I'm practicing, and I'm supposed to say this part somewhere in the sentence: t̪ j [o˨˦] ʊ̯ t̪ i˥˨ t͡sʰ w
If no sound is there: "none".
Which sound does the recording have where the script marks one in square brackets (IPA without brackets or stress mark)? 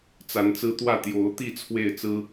o˨˦